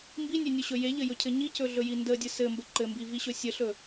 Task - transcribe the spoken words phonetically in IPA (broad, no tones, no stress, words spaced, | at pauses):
mbinʲenʲɵɕɵ jeʎɘjɵcʰɘ ɲicɵɮɵji ndədʲə sɘmbə ǃɘmbiviɕɵ sʲəɬɵ